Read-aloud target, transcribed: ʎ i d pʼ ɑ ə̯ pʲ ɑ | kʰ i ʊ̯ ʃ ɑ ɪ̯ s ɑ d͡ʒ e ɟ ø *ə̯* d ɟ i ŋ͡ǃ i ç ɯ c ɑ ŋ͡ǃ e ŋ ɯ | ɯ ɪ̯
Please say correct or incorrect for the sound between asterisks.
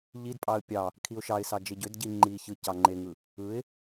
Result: incorrect